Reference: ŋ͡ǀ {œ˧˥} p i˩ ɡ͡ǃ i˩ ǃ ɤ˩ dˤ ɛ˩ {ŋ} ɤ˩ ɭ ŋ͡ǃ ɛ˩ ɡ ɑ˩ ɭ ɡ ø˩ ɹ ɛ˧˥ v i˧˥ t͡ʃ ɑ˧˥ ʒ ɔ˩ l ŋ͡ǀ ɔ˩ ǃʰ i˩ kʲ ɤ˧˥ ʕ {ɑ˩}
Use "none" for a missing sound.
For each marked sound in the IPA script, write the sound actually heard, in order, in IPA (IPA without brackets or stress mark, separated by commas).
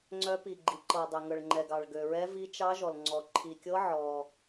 œ˧˥, ŋ, ɔ˩